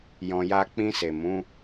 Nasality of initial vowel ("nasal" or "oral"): nasal